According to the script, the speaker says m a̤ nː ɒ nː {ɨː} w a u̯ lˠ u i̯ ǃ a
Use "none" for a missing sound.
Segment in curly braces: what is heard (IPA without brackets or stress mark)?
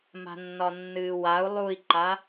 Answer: ɨː